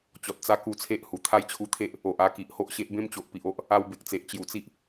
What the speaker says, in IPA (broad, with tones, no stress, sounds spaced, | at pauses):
t͡ɕ ɔ˨ t̚ t͡s a˦ k u˧ t͡sʰ e˦ ʔ h u˨˩ t̪ʰ a˦ j t͡ɕʰ u˧ t̪ʰ e˦ ʔ | o˨ ʔ a˧ k i˨ ʔ h o˦ ʔ ɕ e˦ ʔ b ẽ˦ m t͡ɕ o˨ ʔ p i˨ ʔ o˦ ʔ | a˧ w b e˨ k̚ t͡s e˨ ʔ t͡ɕ j u˨˩ t͡s i˦ ʔ